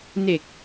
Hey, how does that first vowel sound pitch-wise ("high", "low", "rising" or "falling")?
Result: low